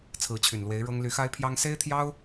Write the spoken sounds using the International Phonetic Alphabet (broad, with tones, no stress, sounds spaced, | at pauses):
t͡sʰ ɹ̩˧˥ t͡ɕʰ y˨˩ n l w e˧˥ ɪ̯ ɻ ɤ˥ ŋ l y˧˥ x a˥ ɪ̯ pʰ j ɑ˥ ŋ s e˥ ɪ̯ t̪ʰ j ɑ˥ ʊ̯